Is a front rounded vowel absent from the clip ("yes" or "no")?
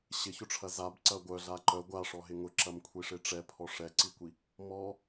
no